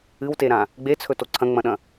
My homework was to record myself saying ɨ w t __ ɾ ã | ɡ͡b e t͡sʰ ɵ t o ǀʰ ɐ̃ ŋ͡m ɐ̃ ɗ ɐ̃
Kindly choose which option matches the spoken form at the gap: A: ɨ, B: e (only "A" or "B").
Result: B